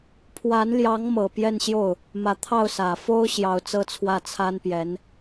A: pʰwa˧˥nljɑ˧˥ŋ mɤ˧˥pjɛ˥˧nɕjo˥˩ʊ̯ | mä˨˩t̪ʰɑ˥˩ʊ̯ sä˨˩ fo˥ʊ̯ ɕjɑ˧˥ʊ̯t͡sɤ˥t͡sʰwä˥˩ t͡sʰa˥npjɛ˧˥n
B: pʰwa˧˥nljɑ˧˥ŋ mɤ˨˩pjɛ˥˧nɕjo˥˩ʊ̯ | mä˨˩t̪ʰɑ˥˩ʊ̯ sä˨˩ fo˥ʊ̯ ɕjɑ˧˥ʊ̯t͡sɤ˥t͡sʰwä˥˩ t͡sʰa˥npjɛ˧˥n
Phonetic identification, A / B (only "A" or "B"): B